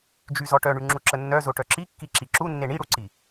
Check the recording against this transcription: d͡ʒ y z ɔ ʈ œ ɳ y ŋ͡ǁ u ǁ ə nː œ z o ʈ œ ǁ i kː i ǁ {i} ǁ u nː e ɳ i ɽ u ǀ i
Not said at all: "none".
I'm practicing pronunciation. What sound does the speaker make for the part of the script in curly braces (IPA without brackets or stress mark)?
i